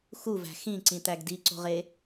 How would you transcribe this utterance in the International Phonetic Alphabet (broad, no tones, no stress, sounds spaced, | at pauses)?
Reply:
x u v æ̤ x ĩ ǀ ĩ t̪ æ ɡ d i ǀ o̤ ʁ e